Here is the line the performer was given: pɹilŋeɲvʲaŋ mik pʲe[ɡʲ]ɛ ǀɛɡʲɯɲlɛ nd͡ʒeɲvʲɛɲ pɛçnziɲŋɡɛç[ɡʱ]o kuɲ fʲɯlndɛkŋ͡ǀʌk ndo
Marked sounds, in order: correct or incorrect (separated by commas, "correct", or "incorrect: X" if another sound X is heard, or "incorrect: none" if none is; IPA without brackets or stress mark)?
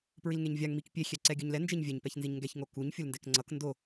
incorrect: xʲ, incorrect: ŋ